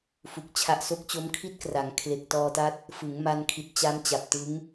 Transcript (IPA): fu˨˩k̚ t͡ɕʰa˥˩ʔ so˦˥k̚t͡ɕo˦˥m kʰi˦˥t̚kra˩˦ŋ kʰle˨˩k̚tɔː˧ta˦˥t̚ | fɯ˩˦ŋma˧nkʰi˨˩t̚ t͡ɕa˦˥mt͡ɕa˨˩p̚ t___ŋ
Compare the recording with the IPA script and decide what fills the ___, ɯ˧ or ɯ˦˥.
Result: ɯ˦˥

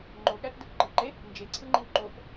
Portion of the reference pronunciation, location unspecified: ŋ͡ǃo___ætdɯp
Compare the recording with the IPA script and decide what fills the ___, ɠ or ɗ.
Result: ɠ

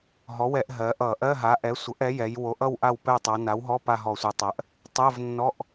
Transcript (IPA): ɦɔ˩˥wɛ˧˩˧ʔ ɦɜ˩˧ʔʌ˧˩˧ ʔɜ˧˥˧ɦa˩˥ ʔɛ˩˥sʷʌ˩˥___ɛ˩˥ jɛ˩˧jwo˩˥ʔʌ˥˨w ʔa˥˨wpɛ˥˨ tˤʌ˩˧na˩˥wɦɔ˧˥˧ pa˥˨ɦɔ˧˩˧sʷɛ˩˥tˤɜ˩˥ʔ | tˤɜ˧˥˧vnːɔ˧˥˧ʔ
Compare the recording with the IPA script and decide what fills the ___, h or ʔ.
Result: ʔ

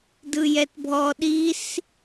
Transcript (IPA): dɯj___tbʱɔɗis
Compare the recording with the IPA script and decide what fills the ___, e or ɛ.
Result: ɛ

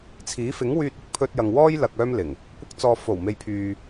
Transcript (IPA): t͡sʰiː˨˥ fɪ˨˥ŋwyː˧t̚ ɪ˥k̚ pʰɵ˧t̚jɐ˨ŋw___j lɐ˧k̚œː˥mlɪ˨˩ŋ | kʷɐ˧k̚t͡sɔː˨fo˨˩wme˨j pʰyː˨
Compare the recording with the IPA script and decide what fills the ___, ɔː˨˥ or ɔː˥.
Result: ɔː˥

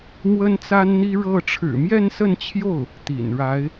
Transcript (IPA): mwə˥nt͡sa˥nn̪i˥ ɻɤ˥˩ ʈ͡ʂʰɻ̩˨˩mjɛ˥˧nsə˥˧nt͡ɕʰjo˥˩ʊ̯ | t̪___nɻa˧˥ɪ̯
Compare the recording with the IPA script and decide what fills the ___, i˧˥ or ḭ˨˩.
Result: ḭ˨˩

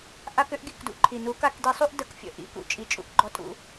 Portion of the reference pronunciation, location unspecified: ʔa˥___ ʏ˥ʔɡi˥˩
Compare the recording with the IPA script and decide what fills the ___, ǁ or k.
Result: k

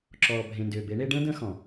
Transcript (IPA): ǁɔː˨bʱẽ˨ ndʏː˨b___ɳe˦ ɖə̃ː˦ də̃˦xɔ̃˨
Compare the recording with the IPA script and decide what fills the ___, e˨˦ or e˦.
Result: e˨˦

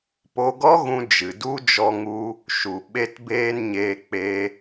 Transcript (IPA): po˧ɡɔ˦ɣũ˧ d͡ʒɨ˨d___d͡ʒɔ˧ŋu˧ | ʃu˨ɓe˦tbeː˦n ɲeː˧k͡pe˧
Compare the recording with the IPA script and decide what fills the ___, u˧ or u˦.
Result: u˦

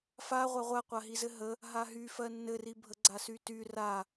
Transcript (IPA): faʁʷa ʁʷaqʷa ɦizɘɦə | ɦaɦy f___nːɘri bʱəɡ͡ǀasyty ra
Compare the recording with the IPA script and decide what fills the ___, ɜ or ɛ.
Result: ɜ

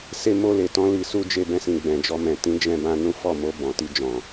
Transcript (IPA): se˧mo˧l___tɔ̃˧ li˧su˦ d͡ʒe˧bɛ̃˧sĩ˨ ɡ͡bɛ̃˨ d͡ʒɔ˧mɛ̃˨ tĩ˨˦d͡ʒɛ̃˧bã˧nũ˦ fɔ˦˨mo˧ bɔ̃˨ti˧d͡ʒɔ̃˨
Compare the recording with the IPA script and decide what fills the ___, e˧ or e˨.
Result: e˨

